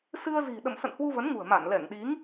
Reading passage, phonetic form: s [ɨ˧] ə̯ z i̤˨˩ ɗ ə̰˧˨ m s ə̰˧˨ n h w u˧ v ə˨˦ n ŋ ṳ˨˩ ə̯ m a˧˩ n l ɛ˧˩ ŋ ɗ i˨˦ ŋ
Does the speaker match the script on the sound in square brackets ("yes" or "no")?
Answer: yes